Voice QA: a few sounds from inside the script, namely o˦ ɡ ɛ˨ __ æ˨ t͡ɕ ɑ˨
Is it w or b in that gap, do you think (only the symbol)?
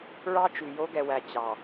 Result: w